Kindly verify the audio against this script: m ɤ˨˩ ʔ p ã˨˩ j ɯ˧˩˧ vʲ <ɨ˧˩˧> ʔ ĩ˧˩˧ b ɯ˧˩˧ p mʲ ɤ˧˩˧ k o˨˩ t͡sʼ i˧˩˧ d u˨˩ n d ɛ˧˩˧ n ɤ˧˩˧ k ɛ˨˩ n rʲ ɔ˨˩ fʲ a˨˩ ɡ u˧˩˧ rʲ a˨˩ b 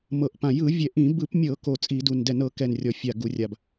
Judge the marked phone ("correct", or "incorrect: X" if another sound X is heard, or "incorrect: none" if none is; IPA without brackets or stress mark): incorrect: ɛ˧˩˧